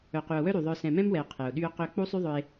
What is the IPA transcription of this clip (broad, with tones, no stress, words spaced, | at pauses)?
œ˨qy˨o̯wœ˦ ɾy˨ðˤœ˧ sɛ̃˨mɛ̃˦mwɛ˨o̯ qʰɛ˨o̯ɗy˦o̯qø˦ k͡pu˦sˤy˦ðˤœ˧e̯